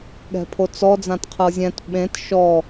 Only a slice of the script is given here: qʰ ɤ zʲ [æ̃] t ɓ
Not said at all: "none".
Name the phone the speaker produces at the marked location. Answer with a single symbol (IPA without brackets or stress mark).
ɛ̃